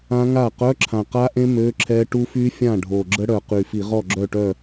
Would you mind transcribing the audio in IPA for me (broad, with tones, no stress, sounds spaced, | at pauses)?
ã˦˥ ŋ a˥˩ q œ˧˥˧ ǁʰ ã˨˩ q a˦˥ ʔ ẽ˦˥ m ø˧˥˧ ǁʰ ɛ˦˥ ʈ u˦˥ f y˦˥ fʲ ã˥˩ ɖʱ o˨˩ ɡ͡ǁ ə˦˥ ɽ œ˨˩ q y˨˩ f i˧˩˧ ʁ ɔ˥˩ ɡ͡ǁ œ˥˩ ʈ œ˥˩